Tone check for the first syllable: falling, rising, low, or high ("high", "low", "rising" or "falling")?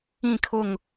falling